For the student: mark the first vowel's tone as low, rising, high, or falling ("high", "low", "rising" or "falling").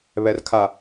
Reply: low